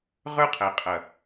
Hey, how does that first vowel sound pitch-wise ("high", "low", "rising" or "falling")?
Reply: falling